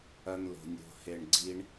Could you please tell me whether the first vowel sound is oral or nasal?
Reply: oral